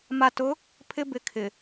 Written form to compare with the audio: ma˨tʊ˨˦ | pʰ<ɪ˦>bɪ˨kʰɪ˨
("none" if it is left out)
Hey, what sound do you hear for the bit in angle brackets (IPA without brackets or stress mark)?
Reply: ɪ˦